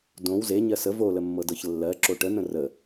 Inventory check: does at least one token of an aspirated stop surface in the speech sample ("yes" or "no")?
no